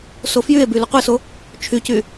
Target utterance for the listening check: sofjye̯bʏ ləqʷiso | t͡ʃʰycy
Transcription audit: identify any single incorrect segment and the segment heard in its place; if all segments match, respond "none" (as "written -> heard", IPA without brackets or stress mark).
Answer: ʏ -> y